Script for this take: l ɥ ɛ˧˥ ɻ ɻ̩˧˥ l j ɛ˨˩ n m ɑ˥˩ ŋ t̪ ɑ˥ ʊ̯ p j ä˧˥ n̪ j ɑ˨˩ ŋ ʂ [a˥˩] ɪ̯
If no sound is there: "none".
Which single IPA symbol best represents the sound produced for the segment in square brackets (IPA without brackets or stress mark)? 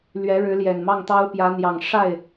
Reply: a˥˩